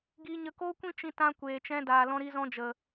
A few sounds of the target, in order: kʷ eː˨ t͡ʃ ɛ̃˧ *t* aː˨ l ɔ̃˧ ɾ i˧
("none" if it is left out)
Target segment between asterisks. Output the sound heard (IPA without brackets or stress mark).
d